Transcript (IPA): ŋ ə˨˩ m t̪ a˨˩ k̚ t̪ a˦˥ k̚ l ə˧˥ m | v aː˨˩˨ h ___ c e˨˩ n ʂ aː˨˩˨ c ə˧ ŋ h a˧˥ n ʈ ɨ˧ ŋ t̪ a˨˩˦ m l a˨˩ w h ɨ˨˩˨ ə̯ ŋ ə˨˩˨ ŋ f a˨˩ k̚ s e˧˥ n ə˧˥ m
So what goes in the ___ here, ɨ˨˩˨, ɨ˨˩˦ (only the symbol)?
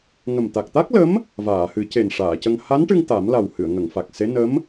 ɨ˨˩˦